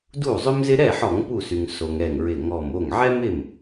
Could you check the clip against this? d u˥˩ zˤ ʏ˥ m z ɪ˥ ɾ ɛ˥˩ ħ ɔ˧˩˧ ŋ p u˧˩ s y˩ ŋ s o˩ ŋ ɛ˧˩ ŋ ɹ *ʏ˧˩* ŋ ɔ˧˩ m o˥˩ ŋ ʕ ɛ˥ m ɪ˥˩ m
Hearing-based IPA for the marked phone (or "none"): ɪ˧˩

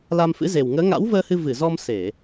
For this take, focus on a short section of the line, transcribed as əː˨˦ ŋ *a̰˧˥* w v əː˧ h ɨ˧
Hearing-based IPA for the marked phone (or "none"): a̰˧˥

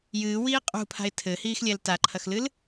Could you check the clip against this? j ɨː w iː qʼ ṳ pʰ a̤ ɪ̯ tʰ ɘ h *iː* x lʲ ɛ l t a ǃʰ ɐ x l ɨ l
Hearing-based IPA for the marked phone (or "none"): iː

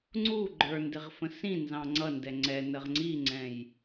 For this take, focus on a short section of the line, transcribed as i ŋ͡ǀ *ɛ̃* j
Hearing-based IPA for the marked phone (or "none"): ɛ̃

